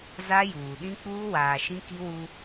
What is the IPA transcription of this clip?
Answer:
z a˦ j uː˨ ɗ ĩ˦ k͡p uː˦ w aː˨ ʃ ĩ˦ k i˦ w u˦

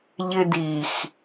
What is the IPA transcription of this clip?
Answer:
ʎ ɪ d i x

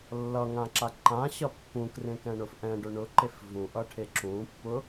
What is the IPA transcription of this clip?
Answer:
lː ʌ ŋ ã ǁ a ǃ ã ɕ ʌ pː ũ k r ẽ k ɛ̃ ɳ ʊ f ʔ ɛ̃ ɖ ʊ ɳ ʊ ǃ e f v ũ ʔ ʌ ʈʰ e ǁ ũ pː ʊ

